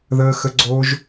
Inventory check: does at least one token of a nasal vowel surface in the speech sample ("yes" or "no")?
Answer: no